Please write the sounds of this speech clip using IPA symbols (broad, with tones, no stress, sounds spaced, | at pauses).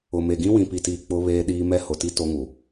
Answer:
ʊ˨ m e˨ ɡ ĩ˦ w ĩ˨ p i˨ t iː˨ k͡p ʊ˦ β eː˦ ɗ iː˦ m ɛ˦ h ʊ˨ t i˦ t o˦ ŋ u˨